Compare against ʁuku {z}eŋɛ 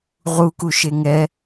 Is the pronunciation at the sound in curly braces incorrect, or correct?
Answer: incorrect: ʃ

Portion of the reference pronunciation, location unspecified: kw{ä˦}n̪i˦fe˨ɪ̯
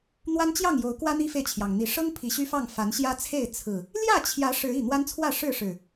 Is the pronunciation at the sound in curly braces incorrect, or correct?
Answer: correct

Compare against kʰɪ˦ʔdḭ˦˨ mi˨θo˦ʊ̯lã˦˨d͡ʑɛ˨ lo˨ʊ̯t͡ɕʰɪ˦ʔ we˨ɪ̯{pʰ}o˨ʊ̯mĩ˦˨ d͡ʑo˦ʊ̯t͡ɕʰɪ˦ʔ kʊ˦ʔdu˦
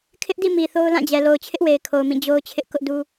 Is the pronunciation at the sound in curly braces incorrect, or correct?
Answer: incorrect: kʰ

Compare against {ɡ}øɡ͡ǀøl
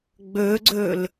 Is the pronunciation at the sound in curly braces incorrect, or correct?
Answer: incorrect: ɡ͡b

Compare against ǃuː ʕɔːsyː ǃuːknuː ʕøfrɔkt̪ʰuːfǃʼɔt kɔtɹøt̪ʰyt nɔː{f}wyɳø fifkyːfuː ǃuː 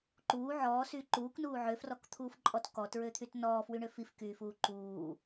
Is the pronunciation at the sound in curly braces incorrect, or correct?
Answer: correct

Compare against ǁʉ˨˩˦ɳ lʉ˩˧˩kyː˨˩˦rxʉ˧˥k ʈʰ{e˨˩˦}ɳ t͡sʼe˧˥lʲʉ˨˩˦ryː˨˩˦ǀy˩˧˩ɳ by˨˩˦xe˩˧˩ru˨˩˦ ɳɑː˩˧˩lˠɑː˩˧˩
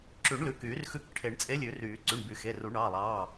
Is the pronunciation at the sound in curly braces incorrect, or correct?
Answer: correct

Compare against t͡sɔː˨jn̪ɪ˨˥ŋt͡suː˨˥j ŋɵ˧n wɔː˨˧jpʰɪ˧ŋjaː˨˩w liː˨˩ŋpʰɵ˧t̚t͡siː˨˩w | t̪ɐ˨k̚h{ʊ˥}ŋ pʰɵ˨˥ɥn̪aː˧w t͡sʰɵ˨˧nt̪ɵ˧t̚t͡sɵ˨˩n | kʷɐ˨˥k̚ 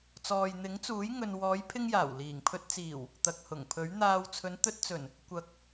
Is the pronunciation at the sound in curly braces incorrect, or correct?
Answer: incorrect: ʊ˨˩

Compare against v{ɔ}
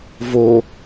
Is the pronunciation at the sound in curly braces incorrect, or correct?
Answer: incorrect: o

